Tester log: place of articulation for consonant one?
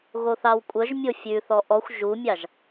velar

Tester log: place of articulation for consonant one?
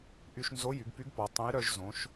glottal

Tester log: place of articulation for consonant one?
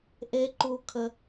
glottal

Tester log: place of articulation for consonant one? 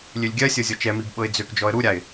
alveolar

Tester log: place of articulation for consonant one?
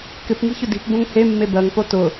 velar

